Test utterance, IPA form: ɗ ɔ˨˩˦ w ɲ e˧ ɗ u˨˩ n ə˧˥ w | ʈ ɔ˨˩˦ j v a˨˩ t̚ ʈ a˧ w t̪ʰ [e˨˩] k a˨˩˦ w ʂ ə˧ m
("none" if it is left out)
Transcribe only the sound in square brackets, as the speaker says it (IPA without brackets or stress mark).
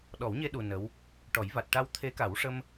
e˧˥